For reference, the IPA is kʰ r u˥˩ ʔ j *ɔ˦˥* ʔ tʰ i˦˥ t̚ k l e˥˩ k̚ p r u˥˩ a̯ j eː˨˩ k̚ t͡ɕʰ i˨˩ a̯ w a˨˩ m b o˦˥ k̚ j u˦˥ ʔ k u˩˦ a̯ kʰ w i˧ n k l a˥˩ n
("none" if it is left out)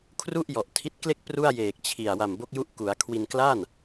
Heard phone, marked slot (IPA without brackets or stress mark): ɔ˨˩